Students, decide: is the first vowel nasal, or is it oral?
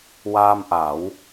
oral